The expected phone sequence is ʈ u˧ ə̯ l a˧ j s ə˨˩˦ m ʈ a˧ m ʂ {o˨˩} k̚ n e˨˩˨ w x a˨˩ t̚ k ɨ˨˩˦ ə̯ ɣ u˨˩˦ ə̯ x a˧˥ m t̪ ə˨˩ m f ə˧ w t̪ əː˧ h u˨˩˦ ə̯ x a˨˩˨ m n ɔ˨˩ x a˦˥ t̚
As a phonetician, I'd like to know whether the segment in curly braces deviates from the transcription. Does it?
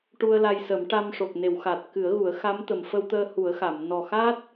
no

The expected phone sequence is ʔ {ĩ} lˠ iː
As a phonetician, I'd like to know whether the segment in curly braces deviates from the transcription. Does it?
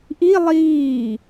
yes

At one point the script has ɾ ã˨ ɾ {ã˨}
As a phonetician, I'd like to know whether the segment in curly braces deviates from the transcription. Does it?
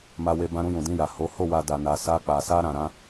yes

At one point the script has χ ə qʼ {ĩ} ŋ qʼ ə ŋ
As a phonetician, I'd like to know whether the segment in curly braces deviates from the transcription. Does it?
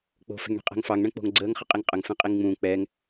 yes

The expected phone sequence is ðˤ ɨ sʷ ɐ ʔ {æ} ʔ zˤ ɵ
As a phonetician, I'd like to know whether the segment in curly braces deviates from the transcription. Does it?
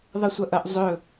yes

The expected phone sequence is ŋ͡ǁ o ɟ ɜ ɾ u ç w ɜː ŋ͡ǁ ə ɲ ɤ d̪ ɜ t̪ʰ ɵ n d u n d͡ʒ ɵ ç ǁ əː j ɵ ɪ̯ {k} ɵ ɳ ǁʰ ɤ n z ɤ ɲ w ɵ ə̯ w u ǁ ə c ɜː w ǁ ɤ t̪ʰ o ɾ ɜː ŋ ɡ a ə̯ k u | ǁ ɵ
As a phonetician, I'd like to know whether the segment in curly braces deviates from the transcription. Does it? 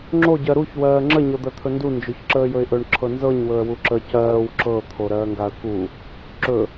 yes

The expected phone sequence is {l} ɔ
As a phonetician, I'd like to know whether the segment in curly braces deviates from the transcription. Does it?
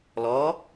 no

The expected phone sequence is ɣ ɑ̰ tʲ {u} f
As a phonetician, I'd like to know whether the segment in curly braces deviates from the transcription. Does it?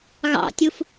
no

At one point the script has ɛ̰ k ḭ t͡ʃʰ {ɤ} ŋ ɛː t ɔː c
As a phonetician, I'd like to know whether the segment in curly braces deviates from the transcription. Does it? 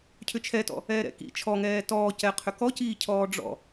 yes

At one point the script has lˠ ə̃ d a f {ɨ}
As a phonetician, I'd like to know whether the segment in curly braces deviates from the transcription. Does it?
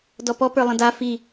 yes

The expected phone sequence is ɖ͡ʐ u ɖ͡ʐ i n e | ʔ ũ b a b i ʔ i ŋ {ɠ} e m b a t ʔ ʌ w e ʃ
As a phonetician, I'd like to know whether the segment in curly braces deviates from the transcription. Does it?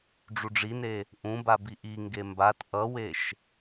yes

